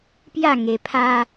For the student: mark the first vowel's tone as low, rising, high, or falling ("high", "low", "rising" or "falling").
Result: falling